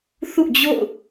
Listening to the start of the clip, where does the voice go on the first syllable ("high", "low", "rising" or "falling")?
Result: falling